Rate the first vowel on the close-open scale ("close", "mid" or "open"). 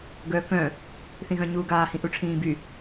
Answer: mid